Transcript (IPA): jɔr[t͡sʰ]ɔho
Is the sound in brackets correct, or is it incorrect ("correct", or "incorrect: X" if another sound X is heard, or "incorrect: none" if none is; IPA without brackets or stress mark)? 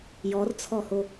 correct